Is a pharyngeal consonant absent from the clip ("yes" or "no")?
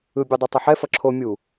no